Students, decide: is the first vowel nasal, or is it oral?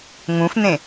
nasal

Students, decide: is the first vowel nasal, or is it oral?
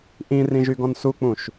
nasal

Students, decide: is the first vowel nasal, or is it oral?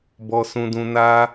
oral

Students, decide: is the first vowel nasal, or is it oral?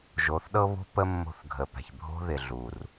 oral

